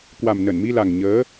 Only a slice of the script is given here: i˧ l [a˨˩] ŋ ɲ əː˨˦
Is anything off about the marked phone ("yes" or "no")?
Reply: no